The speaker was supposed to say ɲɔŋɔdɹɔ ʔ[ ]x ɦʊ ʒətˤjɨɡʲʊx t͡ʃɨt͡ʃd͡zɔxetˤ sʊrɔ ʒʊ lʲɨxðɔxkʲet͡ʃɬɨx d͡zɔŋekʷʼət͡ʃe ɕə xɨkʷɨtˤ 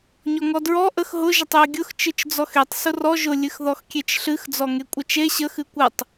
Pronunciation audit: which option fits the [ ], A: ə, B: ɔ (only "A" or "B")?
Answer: A